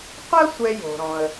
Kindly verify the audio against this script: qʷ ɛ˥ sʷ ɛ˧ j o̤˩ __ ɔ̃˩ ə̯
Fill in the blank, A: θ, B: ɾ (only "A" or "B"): B